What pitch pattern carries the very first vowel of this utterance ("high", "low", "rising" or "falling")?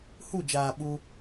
falling